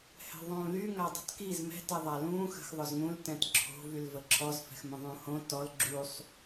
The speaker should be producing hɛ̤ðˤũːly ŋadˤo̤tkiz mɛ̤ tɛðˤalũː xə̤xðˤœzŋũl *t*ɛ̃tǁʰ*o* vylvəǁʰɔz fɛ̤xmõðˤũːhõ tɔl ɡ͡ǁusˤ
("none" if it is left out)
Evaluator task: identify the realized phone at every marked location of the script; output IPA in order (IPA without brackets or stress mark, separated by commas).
t, o̤